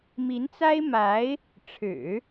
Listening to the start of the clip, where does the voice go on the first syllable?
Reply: rising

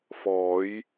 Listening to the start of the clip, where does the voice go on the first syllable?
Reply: rising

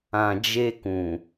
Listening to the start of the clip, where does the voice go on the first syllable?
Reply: low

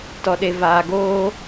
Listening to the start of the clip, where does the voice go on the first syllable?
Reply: low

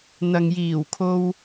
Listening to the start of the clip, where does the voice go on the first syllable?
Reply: low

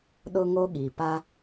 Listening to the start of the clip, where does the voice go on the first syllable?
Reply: high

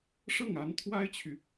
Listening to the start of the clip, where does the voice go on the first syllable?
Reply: falling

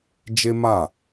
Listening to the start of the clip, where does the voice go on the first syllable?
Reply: high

